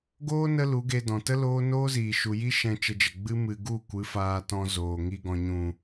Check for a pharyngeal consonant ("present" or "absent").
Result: absent